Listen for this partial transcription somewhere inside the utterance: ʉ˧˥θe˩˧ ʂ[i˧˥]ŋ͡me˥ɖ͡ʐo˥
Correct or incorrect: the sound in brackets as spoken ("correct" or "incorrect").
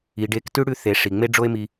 incorrect